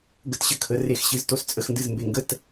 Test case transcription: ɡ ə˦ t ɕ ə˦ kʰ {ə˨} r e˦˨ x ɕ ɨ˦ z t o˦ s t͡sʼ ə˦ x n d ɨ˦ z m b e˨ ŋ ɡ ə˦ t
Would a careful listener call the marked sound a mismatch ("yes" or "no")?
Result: no